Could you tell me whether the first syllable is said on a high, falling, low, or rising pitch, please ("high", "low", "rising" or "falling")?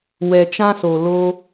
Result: low